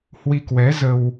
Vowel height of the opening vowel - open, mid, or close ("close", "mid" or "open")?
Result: close